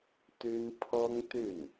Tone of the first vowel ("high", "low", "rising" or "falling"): high